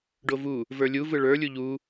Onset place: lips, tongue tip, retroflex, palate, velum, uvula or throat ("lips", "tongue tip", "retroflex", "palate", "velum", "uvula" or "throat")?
retroflex